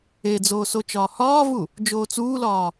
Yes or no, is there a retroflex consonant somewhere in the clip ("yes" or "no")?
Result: no